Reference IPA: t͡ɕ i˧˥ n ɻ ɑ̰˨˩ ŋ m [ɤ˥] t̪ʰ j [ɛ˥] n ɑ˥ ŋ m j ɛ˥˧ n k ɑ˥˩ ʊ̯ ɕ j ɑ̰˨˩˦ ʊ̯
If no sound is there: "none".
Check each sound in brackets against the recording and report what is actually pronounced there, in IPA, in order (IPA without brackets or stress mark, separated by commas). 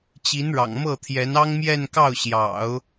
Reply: ɤ˥˩, ɛ˧˥